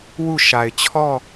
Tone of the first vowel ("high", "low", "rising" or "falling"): falling